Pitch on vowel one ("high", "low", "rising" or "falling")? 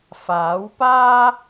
rising